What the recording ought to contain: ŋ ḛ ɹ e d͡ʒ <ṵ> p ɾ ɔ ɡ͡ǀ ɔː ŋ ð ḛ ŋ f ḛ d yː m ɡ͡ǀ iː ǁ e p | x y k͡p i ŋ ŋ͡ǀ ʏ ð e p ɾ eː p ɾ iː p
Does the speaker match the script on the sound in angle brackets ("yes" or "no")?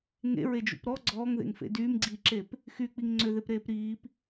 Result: yes